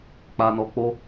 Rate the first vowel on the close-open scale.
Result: open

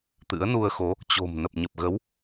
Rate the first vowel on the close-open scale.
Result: close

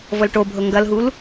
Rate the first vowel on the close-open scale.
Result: mid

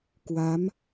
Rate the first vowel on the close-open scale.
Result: open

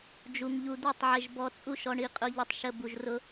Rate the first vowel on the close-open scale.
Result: close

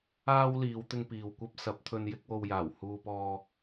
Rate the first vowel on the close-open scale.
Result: open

